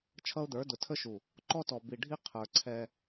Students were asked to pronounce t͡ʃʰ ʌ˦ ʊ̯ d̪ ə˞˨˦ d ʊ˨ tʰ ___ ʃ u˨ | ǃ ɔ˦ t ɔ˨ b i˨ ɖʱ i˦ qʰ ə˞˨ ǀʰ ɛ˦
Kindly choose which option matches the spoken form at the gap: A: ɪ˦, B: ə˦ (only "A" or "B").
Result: B